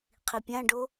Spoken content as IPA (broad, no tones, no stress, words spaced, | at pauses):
qʰipʲãɖo